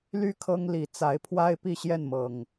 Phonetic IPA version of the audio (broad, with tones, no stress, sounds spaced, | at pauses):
l y˥˨ kʰ ɤ˦ ŋ l i˨˩ t͡s a˨˦ ɪ̯ pʰ w a˦ ɪ̯ p i˥˨ ɕ j ɛ˥˨ n m ɤ˨˩ ŋ